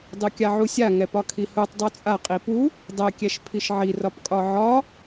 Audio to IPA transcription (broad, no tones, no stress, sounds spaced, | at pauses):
dˤ u kʲ a ʕ u sʲ a ŋ ɛ p ɒ kʰ i h u tˤ dˤ u t͡sʼ a qʼ i p u | dˤ ɛ kʲ ɛ ʃ pʰ i ʃ ʕ i r ɒ p kʼ ɒ ʕ ɒ